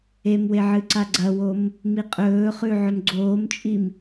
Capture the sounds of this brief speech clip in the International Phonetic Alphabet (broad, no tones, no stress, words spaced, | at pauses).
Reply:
emwe ʕɨǀaɡ͡ǀɐwom | miqʼɵːχʉ ʕɵmɡ͡ǀoːmt͡ʃʼim